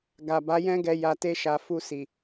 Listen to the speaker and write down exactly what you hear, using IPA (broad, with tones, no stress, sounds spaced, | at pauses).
ɡ a˨ b a˨˦ j ɛ̃˦ ɡ ɛ˧ j a˧ t e˦ ʃ a˧ f u˧ s i˨